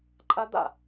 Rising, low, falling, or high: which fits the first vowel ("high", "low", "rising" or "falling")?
high